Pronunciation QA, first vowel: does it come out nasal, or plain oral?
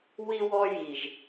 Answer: oral